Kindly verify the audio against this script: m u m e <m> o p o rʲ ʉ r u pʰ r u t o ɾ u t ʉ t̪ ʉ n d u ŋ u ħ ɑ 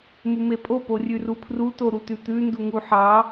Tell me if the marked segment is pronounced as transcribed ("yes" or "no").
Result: no